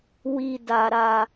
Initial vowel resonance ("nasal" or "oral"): oral